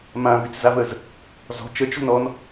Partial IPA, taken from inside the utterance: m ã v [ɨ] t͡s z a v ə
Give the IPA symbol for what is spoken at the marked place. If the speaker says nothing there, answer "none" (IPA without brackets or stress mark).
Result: y